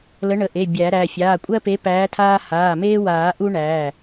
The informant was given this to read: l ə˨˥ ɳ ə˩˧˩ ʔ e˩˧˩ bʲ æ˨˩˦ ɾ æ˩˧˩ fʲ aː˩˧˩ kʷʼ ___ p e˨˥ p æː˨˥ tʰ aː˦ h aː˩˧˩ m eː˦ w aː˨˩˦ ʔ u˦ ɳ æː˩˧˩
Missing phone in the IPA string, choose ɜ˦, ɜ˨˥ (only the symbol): ɜ˦